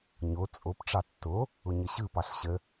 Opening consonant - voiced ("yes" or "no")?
yes